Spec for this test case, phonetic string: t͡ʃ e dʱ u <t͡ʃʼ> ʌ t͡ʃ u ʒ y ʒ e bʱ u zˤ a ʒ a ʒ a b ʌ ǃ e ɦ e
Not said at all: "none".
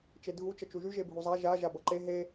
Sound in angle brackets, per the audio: t͡ʃ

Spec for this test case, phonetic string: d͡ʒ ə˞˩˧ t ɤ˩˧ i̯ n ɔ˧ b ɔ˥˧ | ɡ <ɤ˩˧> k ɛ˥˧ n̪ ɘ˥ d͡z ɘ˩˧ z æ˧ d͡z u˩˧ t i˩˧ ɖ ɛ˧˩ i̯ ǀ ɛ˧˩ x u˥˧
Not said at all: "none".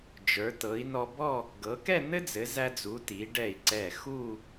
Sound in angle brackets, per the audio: ɤ˩˧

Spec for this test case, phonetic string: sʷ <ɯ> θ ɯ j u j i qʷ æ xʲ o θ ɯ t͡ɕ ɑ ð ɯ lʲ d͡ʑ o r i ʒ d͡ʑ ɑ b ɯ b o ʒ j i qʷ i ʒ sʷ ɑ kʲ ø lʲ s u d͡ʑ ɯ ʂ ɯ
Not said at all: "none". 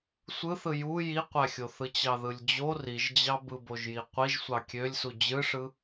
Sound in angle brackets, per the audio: ɯ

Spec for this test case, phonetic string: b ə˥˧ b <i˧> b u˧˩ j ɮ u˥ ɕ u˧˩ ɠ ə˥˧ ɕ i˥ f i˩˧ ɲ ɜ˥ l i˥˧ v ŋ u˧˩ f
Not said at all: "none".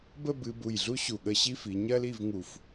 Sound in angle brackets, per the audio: ɨ˧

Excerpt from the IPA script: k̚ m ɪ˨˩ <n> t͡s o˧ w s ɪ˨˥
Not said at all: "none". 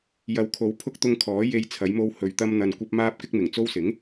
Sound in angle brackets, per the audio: ŋ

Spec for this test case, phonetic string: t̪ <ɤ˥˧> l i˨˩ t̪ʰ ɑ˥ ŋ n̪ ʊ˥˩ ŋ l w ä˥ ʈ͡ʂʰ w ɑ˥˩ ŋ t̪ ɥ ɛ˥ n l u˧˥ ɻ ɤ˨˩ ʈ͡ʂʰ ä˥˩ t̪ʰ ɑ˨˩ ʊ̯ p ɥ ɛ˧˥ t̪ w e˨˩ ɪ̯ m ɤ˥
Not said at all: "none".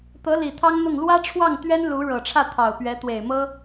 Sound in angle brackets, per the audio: ɤ˧˥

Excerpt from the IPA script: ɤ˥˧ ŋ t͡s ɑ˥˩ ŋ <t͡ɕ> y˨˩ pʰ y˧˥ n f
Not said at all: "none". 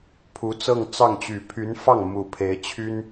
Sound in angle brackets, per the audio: t͡ɕ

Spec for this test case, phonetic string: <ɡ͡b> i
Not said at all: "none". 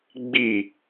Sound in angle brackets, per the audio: ɡ͡b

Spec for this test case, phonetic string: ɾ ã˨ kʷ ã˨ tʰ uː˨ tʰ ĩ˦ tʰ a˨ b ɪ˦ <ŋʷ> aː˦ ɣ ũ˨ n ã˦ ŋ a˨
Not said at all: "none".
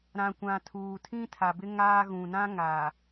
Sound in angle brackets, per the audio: ŋ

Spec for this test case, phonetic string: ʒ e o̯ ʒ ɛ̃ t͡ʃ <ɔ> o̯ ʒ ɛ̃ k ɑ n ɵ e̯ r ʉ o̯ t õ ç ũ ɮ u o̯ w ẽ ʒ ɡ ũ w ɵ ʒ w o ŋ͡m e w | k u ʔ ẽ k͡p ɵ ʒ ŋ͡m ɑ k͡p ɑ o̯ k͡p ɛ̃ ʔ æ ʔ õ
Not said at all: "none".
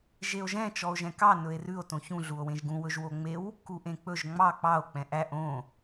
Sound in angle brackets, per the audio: ɔ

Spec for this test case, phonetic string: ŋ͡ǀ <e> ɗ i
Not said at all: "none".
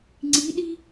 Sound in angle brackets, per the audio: i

